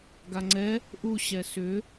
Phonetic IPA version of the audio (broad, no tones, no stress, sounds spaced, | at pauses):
ɡ a ŋ͡ǀ ɛ | ʔ u ɕ ɛ s ʏ